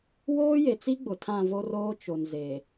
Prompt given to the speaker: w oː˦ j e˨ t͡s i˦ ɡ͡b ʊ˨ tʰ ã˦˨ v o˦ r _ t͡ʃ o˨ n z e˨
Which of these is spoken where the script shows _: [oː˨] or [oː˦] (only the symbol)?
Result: oː˦